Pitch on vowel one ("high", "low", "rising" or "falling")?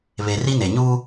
low